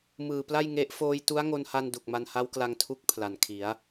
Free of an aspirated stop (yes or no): no